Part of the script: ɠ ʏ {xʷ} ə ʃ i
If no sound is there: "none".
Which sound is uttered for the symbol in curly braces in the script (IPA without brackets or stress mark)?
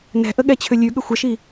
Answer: xʷ